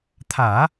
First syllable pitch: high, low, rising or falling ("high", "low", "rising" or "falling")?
low